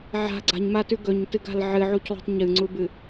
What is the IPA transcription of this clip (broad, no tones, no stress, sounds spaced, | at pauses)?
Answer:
ʕ a̤ ɡ͡ǀ a̤ ɲ m a t ʉ ɡ ɵ ɲ t ɨ ɡ a̤ l ʕ ɨ ʕ u c lˠ ṳ tˤ ɲ ɨ ŋ͡ǀ u b ɨ